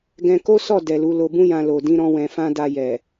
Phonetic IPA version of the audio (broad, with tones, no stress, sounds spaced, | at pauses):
ɡ ɛ̃˧ k o˦ s ɔ˦˨ d ɛ˨ l u˨˦ l o˧ b ũ˦ j ã˧ l o˨ d ĩ˧ ɾ ɔ̃˧ w ɛ̃˧ f ã˦ d a˧ j ɛ˨